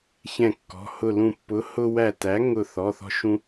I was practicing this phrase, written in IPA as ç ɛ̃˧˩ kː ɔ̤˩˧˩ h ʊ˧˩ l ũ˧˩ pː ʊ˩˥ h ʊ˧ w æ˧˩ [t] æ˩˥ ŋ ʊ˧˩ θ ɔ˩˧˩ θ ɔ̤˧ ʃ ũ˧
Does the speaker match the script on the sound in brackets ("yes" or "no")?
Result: yes